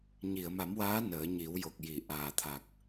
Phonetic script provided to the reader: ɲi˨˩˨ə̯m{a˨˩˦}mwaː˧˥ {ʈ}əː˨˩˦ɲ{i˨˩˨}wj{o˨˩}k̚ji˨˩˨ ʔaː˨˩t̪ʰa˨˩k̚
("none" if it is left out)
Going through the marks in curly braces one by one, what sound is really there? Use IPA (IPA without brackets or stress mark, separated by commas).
a˨˩˦, n, i˨˩˦, o˨˩